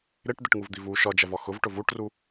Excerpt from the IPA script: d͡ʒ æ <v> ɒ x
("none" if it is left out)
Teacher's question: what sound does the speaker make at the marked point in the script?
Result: v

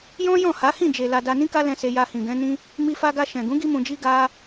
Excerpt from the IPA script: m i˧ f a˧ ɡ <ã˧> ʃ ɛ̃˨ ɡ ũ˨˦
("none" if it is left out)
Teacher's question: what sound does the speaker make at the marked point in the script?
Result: a˧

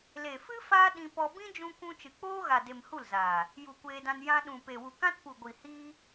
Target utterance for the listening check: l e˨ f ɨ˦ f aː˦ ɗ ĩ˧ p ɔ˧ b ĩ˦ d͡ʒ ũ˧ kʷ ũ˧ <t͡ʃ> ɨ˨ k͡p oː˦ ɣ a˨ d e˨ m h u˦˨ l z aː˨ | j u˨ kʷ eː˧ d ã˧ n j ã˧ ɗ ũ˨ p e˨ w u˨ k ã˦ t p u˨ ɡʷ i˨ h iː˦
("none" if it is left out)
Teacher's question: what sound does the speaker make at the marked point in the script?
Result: t͡ʃ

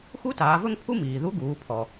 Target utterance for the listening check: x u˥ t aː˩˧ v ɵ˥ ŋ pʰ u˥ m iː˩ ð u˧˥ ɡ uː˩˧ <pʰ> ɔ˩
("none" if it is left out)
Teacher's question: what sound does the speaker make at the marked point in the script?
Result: pʰ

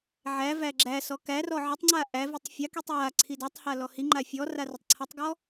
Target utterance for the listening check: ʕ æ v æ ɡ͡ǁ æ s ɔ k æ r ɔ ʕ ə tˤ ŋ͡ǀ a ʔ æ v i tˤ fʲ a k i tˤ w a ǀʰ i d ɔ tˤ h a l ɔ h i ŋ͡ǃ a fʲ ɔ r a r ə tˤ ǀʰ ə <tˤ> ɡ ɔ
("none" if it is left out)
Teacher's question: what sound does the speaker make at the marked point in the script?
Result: tˤ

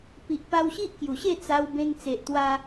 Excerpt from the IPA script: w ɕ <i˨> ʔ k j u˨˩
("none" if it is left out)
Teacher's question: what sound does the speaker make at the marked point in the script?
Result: i˦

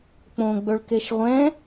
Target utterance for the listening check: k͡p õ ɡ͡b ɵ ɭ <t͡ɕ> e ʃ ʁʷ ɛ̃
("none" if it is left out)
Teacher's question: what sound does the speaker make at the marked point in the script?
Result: k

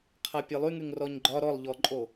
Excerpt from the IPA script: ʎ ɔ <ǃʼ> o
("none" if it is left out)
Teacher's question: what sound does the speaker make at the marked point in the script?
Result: ǃʼ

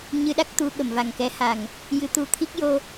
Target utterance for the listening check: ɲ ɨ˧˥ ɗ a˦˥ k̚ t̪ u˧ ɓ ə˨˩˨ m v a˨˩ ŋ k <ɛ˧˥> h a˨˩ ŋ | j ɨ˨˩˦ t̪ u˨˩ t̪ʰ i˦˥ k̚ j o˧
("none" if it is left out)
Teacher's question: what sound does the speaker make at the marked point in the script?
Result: ɛ˧˥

